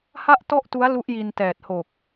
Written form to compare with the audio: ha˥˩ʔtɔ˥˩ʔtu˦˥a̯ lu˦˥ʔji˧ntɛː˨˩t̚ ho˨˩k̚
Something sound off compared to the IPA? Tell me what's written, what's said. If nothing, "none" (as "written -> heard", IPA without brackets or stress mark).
none